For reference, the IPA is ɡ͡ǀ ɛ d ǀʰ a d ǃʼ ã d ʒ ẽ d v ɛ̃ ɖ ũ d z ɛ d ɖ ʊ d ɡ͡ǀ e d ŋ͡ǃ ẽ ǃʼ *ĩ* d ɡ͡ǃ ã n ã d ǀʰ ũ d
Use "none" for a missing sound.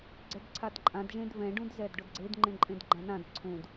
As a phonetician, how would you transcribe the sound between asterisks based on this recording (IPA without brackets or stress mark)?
ẽ